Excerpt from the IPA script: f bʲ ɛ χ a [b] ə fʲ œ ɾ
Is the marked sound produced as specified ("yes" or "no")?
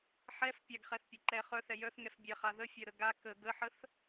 no